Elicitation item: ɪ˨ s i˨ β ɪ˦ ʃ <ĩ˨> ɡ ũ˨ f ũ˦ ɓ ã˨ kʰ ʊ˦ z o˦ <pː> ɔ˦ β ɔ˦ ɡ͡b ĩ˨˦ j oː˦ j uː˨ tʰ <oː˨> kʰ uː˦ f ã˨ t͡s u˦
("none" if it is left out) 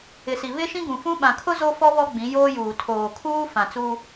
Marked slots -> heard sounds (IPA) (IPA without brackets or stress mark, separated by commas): ĩ˦, f, oː˨